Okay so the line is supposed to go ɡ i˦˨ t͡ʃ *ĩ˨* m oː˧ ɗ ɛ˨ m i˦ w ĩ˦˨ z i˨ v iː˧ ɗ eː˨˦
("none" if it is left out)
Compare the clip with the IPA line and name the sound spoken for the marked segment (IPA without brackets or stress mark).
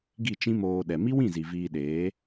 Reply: ĩ˦